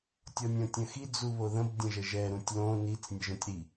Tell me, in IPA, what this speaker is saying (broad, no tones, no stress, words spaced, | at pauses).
tʲɔnʲõtʲə̃xi d͡zuβoðə̃b dʲə̃ʒəʒɛ ɾũtʲlõ nit͡s nʲəʒũtʲɾi